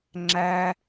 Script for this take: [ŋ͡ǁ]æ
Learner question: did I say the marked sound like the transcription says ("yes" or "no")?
yes